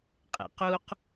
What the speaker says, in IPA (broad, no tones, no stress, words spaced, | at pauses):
qʼḛquq